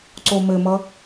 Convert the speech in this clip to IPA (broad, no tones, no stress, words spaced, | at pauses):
ǀomɘmʌ